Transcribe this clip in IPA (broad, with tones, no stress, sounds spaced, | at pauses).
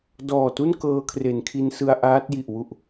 d ɔː˨˩ t u˥˩ n k ɤː˧ kʰ r e˩˦ n kʰ i˧ n s ɯ˧ a̯ ʔ aː˦˥ t̚ j i˨˩ ʔ w u˨˩ ʔ